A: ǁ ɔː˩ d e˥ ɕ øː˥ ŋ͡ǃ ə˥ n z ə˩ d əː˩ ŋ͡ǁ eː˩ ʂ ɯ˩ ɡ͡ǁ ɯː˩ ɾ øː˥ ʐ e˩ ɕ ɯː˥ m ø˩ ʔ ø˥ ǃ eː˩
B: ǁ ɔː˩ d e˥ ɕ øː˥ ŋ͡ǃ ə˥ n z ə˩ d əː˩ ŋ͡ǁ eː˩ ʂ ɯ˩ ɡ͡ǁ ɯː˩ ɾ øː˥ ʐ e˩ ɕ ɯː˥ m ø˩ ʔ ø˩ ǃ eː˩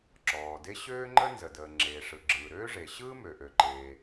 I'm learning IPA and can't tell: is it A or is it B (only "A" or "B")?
B